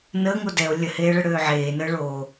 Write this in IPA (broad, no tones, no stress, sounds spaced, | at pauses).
n əː ŋ o d ɛ o̯ lʲ ə h eː ɭ ə ɽ øː ʕ eː n əː ɭ oː